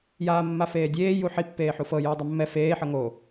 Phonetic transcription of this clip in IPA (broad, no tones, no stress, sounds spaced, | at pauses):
j aː mː a f eː dʲ eː j u ħ i pː eː ħ u f ɤ j ɯː dˤ ɯ mː ɛ f eː ħ ɤ ŋ o